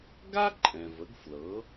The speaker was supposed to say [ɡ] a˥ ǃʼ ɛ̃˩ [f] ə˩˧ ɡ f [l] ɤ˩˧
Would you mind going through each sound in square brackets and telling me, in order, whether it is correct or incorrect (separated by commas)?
correct, incorrect, correct